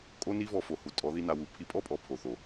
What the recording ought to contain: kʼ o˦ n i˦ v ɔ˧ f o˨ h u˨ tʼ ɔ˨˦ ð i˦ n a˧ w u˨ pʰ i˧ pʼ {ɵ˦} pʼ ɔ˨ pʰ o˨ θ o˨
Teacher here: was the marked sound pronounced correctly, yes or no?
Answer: no